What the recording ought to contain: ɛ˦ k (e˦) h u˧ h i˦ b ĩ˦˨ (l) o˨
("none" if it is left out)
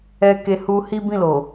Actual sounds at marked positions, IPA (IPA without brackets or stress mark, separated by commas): e˦, l